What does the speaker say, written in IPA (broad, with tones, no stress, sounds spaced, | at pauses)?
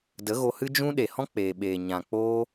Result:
d ə˨˦ ɣ o˧ h ɨ˦ d͡ʒ ũ˦ ɗ e˨ h ɔ̃˦ k͡p eː˨ ɓ eː˨ ɲ ã˨ k͡p oː˦